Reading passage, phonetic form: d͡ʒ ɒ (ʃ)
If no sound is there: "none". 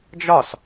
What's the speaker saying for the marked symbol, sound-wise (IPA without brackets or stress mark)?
s